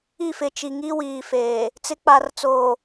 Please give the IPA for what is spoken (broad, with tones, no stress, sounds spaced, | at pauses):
i˦˨ f ɪ˨ t͡ʃ i˨ ŋ i˦ w iː˨ f eː˨ | t͡s ɪ˨˦ k͡p a˨ r t͡s oː˨